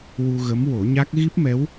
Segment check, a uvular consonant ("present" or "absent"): absent